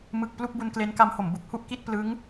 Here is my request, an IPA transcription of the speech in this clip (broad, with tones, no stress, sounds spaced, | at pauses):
m ɯ˨˩ k̚ p l u˥˩ k̚ b u˧ n k l e˦˥ n k a˦˥ m h o˩˦ m b u˨˩ k̚ h u˥˩ ʔ k i˥˩ t̚ p l ɯ˦˥ ŋ